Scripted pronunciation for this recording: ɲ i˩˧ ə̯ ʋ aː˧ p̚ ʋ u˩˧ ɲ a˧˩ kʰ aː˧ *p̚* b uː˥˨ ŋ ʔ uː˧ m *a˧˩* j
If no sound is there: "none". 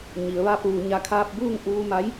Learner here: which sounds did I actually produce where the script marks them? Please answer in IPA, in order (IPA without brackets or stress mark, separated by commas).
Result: p̚, a˧˥